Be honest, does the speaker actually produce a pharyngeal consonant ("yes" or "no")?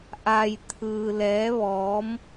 no